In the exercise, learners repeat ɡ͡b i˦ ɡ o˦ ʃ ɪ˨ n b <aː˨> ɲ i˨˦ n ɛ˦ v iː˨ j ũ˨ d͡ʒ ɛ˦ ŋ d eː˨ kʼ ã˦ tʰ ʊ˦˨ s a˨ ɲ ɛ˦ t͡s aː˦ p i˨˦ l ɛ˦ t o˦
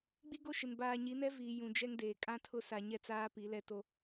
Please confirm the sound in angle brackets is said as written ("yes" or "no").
yes